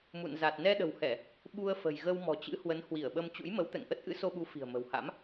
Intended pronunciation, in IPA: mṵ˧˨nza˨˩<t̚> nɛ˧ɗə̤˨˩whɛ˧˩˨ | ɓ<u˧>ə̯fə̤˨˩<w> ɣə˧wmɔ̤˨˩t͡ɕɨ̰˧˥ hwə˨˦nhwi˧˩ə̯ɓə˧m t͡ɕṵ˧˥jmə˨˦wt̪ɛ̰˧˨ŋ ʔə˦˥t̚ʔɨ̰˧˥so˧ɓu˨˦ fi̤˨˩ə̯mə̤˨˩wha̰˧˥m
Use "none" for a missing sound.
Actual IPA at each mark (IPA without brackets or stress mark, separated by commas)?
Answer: t̚, u˧, j